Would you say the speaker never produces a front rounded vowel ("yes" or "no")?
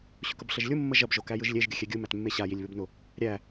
yes